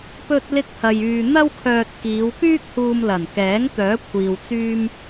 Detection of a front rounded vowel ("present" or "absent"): present